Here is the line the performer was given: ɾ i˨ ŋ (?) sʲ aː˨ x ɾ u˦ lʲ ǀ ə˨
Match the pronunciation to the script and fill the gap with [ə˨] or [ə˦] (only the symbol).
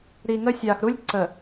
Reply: ə˦